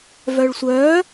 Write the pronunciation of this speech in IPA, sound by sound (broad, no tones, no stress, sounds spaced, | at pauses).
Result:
v œ ɭ sʷ œː